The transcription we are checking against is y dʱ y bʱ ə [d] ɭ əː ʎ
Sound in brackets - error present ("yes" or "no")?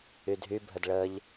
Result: no